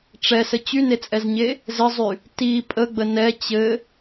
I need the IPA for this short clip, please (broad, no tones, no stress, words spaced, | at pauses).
ʈ͡ʂɛsə t͡ɕynet͡sʼɛzɲe | zɘzˤy | ti pʼəɡ͡bə nɛ t͡ɕɘ